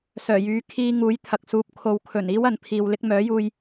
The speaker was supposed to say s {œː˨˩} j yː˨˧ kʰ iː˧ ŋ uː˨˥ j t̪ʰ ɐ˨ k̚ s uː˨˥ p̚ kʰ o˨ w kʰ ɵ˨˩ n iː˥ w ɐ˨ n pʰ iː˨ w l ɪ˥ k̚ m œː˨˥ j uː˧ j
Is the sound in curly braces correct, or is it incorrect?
correct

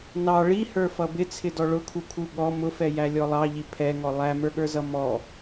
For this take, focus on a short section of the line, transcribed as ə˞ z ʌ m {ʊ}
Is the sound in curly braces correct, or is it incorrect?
incorrect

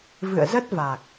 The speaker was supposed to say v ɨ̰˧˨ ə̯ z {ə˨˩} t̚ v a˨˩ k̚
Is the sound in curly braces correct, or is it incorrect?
incorrect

